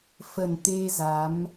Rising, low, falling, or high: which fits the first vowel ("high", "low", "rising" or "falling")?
low